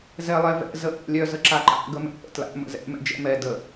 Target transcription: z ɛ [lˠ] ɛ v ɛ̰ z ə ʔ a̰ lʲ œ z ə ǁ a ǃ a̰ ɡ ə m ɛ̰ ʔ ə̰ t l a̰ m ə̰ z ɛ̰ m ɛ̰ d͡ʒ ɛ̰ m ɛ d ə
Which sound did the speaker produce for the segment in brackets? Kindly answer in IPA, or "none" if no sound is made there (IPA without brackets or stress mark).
lˠ